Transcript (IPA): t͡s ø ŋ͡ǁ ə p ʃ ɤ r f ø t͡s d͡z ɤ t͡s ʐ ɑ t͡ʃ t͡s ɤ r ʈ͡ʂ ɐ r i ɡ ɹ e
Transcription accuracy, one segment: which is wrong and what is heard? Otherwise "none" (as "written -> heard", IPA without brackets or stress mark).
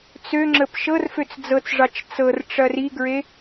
none